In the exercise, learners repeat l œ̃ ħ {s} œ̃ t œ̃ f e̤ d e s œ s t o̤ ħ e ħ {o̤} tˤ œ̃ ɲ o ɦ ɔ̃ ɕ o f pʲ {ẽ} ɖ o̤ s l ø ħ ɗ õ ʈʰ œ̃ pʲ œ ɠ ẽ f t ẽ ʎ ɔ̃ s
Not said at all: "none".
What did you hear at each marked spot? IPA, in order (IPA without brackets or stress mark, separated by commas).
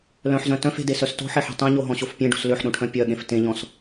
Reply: z, o̤, ẽ